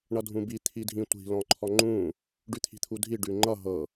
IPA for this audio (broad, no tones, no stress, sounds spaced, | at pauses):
ɳ ʌ dʱ ũ b i t̪ʰ i dʱ ĩ tʷ i̤ l ɔ̃ ǃʰ ɔ ŋ͡ǃ ũ | ɖ ʉ t̪ʰ i̤ t̪ʰ u dʱ i ɖ ʉ ŋ͡ǃ ʌ ɦ ɤ